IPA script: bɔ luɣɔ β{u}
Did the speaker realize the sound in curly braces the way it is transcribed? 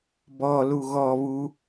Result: yes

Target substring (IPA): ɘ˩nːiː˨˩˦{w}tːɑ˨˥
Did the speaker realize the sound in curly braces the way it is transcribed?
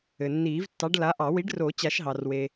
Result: no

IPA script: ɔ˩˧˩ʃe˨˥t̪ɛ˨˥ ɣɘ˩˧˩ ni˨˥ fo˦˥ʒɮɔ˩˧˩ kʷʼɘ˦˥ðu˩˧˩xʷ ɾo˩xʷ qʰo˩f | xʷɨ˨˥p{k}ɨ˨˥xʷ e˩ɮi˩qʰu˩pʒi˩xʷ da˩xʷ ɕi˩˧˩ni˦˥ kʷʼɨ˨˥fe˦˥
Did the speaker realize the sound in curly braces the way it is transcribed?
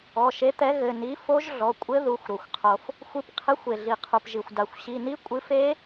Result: no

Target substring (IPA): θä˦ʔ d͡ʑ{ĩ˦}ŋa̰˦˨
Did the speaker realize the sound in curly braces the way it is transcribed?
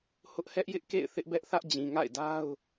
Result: no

